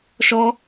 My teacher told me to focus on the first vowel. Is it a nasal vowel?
no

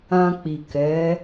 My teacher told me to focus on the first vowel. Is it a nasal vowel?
yes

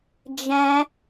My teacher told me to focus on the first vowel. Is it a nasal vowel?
yes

